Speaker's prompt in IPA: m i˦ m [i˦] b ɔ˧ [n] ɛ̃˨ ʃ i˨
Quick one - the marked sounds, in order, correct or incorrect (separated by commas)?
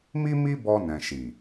correct, correct